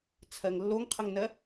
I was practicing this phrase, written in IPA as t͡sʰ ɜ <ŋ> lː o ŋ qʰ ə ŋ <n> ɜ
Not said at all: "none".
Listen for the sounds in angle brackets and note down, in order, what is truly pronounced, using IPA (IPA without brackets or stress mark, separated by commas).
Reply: ŋ, n